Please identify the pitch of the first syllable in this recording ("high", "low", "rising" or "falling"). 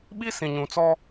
high